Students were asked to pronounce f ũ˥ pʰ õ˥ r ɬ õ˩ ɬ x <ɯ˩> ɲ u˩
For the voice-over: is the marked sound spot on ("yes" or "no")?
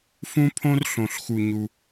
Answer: no